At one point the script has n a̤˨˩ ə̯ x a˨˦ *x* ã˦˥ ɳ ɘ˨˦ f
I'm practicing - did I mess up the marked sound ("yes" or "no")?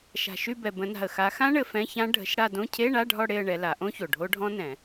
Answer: no